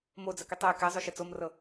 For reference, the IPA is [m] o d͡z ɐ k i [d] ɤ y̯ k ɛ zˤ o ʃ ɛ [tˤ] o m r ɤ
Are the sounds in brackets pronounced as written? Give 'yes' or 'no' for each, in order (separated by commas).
yes, no, no